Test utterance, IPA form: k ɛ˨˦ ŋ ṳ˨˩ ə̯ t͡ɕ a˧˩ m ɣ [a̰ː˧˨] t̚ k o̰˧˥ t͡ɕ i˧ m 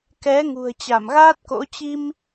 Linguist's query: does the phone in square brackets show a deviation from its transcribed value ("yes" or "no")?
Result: yes